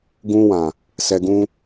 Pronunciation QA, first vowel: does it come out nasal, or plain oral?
nasal